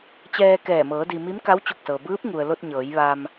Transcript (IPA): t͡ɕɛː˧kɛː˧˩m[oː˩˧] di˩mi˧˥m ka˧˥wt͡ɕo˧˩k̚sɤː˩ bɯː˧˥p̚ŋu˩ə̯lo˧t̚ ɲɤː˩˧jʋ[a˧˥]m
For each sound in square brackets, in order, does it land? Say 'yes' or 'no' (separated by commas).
no, no